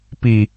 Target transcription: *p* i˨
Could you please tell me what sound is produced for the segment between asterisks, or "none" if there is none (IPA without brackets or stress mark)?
p